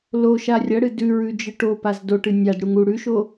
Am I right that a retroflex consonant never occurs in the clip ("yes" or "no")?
no